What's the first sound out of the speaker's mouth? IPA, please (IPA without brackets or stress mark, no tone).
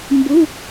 m